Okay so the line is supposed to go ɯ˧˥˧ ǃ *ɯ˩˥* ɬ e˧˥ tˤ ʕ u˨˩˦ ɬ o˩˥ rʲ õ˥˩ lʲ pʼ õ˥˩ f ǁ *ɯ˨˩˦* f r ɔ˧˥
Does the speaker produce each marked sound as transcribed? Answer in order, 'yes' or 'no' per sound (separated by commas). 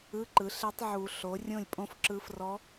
yes, no